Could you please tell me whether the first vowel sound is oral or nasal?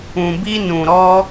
nasal